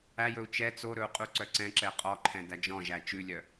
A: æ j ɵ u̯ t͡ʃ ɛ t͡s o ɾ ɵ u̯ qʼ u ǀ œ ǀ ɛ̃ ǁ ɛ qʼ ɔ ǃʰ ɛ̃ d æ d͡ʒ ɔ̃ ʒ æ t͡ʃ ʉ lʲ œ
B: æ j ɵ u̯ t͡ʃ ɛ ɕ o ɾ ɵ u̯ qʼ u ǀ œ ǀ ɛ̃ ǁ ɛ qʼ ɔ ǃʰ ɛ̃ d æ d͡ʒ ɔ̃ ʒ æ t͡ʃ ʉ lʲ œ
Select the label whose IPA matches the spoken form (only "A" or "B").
A